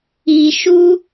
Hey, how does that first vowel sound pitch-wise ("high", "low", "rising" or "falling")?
low